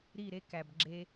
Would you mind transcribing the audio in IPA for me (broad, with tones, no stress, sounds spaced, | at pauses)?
ɾ i˦˨ ɾ e˦ k æ˨ b ɡ͡ǁ e˧